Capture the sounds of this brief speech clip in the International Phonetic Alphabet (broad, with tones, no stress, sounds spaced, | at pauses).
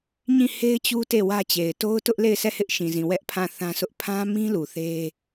ɲ ĩ˦˨ h e˦ ɪ̯ t͡ɕ u˦ t e˦˨ w ä˦ t͡ɕ e˨ ɪ̯ t o˦ ʊ̯ t ʊ˦ ʔ l e˦˨ ɪ̯ sʰ ɛ˦˨ h ɪ˦ ʔ ʃ ĩ˨ z ĩ˨ w ɛ˦ ʔ pʰ ã˦˨ θ ã˦ sʰ ʊ˦ ʔ pʰ ã˦ m ĩ˦ l u˨ θ e˦